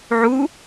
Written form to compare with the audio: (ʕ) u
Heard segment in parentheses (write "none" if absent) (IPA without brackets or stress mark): ʕ